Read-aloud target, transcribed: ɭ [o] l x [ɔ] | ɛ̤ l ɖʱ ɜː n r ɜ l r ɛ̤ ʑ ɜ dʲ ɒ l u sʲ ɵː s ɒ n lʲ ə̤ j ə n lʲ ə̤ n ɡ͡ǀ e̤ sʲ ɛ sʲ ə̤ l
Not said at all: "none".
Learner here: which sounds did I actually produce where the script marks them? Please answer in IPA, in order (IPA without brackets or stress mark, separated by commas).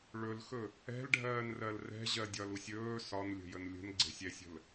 ɵ, ɵ